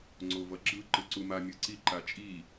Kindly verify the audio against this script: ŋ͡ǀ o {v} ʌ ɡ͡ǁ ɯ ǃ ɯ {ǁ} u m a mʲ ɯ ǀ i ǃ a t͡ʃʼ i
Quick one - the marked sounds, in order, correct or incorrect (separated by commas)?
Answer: correct, incorrect